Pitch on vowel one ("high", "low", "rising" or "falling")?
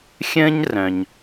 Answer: high